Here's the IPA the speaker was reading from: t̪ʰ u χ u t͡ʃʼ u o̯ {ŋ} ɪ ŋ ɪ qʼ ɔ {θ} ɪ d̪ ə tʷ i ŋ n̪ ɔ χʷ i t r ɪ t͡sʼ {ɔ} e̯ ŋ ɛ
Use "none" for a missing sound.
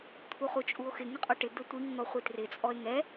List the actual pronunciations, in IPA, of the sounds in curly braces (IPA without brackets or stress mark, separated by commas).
x, ʈ, ɔ